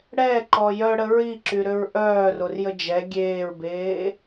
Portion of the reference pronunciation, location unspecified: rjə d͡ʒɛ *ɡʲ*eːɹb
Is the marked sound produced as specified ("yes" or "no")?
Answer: yes